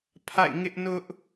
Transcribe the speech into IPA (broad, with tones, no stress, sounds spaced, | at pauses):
pʰ a̰˦˨ ɪ̯ ŋ ɪ˦ ʔ n ʊ˦ ʔ